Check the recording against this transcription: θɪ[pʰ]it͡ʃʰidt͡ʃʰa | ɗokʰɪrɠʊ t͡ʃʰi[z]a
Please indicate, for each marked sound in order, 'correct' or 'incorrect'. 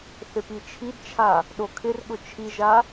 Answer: incorrect, incorrect

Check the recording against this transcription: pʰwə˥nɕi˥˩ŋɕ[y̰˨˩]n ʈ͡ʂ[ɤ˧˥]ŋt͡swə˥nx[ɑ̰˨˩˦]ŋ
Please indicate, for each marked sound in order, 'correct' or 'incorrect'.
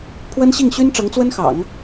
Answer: incorrect, correct, correct

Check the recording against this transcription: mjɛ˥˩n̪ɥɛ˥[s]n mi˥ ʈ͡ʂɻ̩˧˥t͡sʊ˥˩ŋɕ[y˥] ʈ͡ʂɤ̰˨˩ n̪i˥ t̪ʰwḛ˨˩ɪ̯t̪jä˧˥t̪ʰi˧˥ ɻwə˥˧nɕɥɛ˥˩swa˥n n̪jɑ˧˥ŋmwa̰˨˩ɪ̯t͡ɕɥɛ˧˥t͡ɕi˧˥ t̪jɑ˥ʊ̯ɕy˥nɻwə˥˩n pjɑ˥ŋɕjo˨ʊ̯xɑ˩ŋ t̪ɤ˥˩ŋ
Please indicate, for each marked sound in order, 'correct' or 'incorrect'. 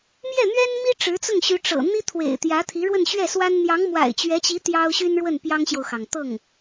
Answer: incorrect, incorrect

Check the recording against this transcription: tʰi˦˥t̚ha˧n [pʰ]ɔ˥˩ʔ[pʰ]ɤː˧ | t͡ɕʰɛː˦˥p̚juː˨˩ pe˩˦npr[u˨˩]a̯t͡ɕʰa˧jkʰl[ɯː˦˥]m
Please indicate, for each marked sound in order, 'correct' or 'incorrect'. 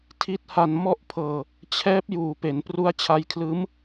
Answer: incorrect, correct, incorrect, correct

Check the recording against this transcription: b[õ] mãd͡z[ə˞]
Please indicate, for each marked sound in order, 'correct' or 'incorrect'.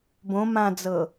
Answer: correct, incorrect

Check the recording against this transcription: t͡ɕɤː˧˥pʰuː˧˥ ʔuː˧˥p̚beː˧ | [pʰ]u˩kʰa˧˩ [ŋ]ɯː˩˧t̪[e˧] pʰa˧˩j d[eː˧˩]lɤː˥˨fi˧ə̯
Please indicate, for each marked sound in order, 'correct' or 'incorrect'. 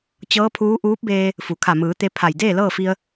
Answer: incorrect, incorrect, correct, incorrect

